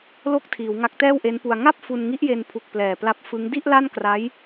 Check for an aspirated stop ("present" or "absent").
present